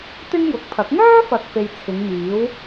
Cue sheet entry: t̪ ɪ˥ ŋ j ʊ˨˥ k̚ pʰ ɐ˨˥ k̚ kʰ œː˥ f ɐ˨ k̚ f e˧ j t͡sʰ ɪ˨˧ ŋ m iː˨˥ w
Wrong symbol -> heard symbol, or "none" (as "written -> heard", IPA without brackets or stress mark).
kʰ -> ŋ